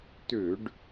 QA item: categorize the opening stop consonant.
plain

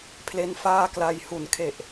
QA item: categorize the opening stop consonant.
aspirated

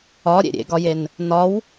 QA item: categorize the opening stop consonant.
plain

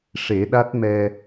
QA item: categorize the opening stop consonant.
implosive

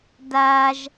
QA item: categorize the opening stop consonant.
plain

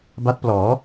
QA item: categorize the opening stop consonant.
plain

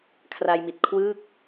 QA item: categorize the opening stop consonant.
aspirated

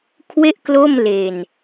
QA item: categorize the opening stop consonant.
aspirated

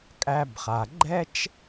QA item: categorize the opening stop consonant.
ejective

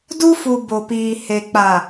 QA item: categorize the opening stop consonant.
plain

